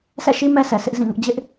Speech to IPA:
sʰɛ̰˦˨ʃi˦ mɛ˦sʰɛ˨sʰɪ˦ʔ zĩ˦˨ŋʊ˦ʔ d͡ʑɪ˦ʔ

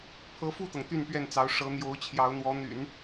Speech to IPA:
pʰɤ˧˥fu˥˩t̪ɤ˩ŋ t̪y˥˧npɥɛ˥˩nt͡sɑ˧˥ʊ̯ ʂɤ˧˥ n̪jo˧˥ʊ̯ t͡ɕʰjɑ˧˥ʊ̯n̪wɔ˧˥n̪y̰˨˩˦n

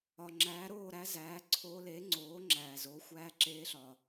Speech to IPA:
ɒ˩ŋ͡ǁæː˩˥ɾoː˥˨ɾæ˧˥ zæː˩˥ǀʰoː˧˥ leː˩˥ŋ͡ǀoː˩˥ŋ͡ǁæː˩zoː˩˥ xʷæː˧˥ǁeː˧˥ɬɒ˩

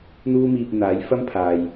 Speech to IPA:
n̪uː˥miː˧p̚n̪aː˨˥j fɐ˥mpʰaː˨j

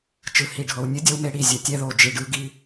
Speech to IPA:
t͡ʃɯ˨hi˨ɖʱɤ˨w nʲɯ˦ dʲɔ˦wme˦ɽi˨zʲɛ˨ tʲɛ˦ðo˨ d͡ʒi˨ɖɯ˦ ɡi˦

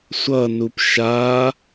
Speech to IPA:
sʷʌnup ʃa

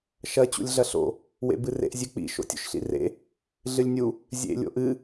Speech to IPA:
ʃɐ t͡ɕṵlʲɮɐɬo̰ | wḛbɨrḛʔ zʲʉk͡pḭ ʃo̰tʲo̰ʃɬḭrḛ | ɮɨlʲnʲu | zʲḛ lʲo̰ʔɨ

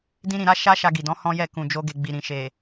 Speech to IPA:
dĩ˦ɾĩ˧ɾa˦ ʃa˦ ʃa˧ɡi˨dɔ̃˨˦ hɔ̃˦jɛ˦˨ kũ˨d͡ʒo˧ɡe˨ ɡ͡bi˨ɾĩ˨ʃe˨

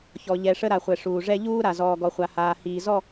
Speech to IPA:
çɔ˨ ʎɛ˨ʂə˦ɾa˨ χʷɛ˨ʂuː˨ ʐɛ˦ʎuː˦ɾa˨ zɔː˨ɡɔ˨χʷa˨haː˨ hiː˨zɔ˦˨

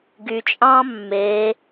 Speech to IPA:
ɡyt͡ʃʼɑ̃ː mːe

